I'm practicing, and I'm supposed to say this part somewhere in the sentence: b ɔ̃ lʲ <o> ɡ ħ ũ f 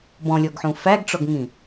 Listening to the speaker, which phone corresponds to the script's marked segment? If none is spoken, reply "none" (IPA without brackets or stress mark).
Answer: ɔ